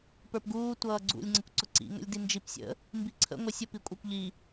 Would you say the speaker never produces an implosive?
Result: yes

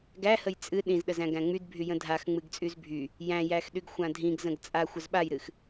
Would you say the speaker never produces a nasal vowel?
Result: no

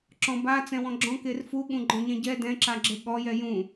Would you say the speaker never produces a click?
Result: no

